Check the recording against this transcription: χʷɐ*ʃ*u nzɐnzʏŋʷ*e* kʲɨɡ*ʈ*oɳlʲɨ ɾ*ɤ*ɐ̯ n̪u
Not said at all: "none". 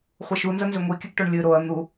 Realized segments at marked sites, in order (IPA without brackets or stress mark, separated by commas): ʃ, i, ʈ, o